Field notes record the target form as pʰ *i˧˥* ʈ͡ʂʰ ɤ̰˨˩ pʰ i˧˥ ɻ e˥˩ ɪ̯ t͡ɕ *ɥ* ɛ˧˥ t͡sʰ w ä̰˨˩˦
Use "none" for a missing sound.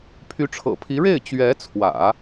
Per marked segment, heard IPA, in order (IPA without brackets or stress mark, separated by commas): y˧˥, ɥ